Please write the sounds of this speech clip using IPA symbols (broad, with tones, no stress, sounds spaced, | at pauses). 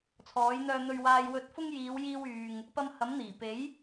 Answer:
t͡sʰ ɔː˨˥ j n̪ œː˧ n̪ ɵ˧ ɥ w aː˧ j w ɵ˧ t̚ f ʊ˥ ŋ j iː˨˧ w j iː˧ w yː˨ ŋ | p ɐ˧ m h ɐ˨˥ m n̪ iː˨˩ p e˨˥ j